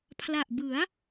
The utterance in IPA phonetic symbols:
pʰ l a˨˩ ʔ b ɯ˩˦ a̯

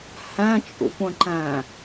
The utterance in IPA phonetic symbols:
h æ̃ t͡ʃʼ ṵ kʷ ə̃ ǃ æ̃

